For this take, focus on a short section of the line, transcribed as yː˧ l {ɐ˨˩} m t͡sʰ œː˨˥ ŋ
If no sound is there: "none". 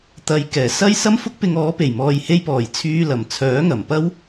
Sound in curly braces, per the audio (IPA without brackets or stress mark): ɐ˨˩